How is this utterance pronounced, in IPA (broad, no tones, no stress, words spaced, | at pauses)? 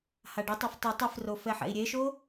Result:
haɖɛtˤaf tˤɯ tˤifro fɛħɛ̰i̯ɾʲeʃo